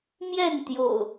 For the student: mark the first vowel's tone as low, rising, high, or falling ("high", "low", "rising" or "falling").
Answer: falling